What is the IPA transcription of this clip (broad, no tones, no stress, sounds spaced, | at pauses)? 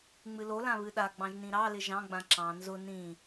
ŋ͡m ɨ l o l ã β ɨ ɗ a ɡ͡b ɑ̃ ʒ n ĩ ɾ ɑ l ɪ ʒ ɑ̃ ɡ͡b ã ǁ ɑ̃ n z ʊ n ĩ